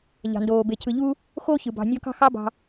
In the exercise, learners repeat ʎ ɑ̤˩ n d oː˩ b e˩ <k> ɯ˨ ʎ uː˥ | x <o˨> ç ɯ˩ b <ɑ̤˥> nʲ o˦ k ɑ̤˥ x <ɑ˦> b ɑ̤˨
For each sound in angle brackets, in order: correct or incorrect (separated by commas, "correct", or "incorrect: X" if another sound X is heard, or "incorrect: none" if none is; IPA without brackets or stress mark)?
incorrect: cʰ, incorrect: o˥, incorrect: ɑ̤˨, correct